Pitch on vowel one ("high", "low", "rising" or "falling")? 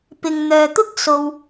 low